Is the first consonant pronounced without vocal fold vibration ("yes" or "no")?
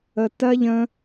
yes